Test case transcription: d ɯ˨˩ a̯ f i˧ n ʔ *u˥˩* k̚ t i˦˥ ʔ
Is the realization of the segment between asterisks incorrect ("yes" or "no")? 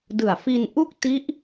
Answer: no